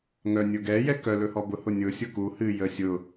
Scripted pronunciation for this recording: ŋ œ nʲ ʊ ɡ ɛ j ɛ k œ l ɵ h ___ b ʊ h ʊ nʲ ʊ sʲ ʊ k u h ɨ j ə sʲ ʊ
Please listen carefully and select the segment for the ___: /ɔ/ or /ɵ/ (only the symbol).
ɔ